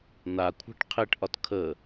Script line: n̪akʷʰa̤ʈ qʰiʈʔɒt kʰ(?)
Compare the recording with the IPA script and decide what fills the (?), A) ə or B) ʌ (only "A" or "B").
A